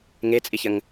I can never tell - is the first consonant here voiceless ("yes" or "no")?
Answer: no